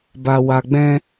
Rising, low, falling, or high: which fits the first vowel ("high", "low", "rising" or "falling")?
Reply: low